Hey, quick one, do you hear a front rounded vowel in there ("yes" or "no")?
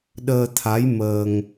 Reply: no